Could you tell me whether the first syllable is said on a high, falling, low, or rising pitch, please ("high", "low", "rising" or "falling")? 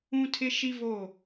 high